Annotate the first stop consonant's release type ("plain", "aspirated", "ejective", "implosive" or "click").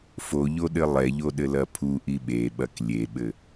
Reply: implosive